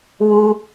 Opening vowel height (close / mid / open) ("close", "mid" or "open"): close